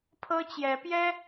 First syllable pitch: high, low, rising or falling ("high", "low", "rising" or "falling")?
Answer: high